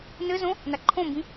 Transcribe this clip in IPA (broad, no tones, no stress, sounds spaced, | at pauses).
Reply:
n ɘ z õ | n a ǃʰ õ m b ĩ